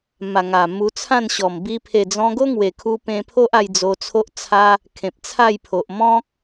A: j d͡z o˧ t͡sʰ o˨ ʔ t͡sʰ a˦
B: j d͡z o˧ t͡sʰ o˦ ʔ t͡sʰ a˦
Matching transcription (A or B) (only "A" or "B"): B